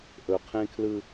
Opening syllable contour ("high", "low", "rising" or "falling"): low